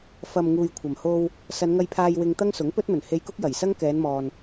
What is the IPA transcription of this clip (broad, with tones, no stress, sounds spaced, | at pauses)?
f ɐ˨ m ŋ uː˨ j kʷʰ ɐ˨˩ m h o˧ w | s ɐ˨˧ n ŋ ɐ˧ j pʰ aː˧ j w ɪ˧ ŋ t̪ ɐ˥ ŋ s ʊ˨˥ ŋ p ɵ˥ t̚ m ɵ˨˩ n h e˧ j k ʊ˥ k̚ j ɐ˨˩ j s ɐ˥ ŋ k ɛː˨˧ n m ɔː˨ n